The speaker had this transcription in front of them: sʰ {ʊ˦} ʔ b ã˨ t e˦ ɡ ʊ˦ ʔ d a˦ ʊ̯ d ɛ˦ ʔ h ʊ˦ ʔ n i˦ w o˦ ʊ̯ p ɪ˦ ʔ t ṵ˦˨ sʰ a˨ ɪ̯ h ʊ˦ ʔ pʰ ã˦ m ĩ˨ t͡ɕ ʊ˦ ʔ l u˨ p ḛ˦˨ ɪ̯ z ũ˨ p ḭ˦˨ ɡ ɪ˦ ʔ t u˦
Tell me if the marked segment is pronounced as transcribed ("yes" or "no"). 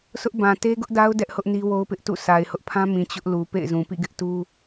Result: yes